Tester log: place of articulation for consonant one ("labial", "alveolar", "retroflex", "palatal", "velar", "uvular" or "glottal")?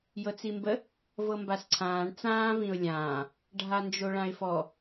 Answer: palatal